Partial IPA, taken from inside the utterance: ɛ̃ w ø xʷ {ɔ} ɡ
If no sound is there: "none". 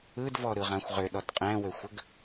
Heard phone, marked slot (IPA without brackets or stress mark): ə